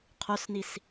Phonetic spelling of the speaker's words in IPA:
qʰ o s n i s

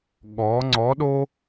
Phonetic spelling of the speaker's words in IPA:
ɠ ɔ˨˦ ŋ͡ǀ ɔ˨˦ ɗ o˦

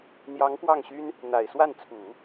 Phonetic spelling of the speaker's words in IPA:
n̪ j ɑ˧˥ ŋ p w ɑ˥˩ ŋ ɕ y˥ n | n̪ a˨˩ ɪ̯ s w a˥˩ n t͡sʰ u˨˩˦

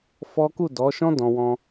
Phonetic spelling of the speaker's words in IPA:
f ɔ˦ k u˦˨ d ɔ˨˦ ʃ ɔ̃˦ d ɔ̃˧ w ɔ̃˦

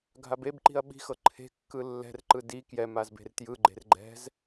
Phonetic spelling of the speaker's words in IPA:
ɡʱ a b e b ǃ i̤ ɐ̯ ɓ i̤ x ɤ ǃʰ e̤ kː ɯ lː ɛ̤ r ǃ ɯ d i k j ɛ m a z b e̤ r t j ɯ ɡ͡ǃ e̤ r ɡ͡ǃ ɛ̤ z

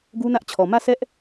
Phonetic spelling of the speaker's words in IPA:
ɡ u˦ n ä˦ ʔ t͡ɕʰ ɔ˨ m ä˦˨ s ɛ˦ ʔ

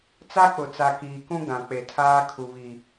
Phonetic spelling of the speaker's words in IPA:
t͡s a˦ k͡p ʊ˨ t͡s a˨ k iː˨ k ũ˦ ɡ ã˨ k͡p e˨ tʰ aː˦ kʰ u˨ β i˨

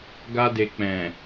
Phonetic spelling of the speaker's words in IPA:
ɡ a˧ d e˨ k͡p ɛ̃˨

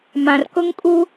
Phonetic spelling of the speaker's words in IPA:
m ã˨ r k ʊ˦ ŋ kʼ u˦

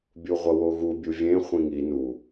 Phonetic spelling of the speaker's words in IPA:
bʲ u ʁʷ ʌ w o ɣ u bʲ u vʲ ẽ χʷ ĩ ŋ i n u

